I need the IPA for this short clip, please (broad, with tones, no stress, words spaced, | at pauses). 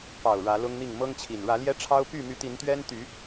pɑ˨˩ʊ̯ ɻä˨˦lʊ˦ŋn̪i˥˨ŋ mɤ˦ŋt͡ɕʰi˨˩n ɻä˨˦ljɛ˦ʈ͡ʂʰɑ˦ʊ̯py˥˨ my˨˦t̪i˨˦nt̪ɥɛ˦nt̪y˨˦